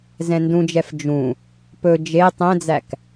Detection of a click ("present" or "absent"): absent